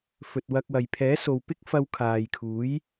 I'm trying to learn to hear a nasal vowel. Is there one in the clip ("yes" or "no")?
no